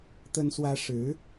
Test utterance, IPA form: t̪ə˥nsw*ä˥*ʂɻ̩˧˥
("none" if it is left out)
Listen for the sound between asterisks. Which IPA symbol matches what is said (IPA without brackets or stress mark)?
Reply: ä˥